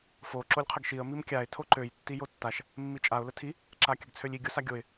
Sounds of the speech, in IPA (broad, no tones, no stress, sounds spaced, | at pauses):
f o ǁ o lʲ qʰ ə ɡ ʃ i ə̯ m i m kʲ a ɪ̯ tʰ o ǃ ø j tː i j o tː a ʃ | mː i t͡ʃʼ a ʊ̯ l ə tʰ i | ǁ a kʲ ə ɡ t͡sʰ ø lʲ i ɡʲ o s a ɡʲ o ɪ̯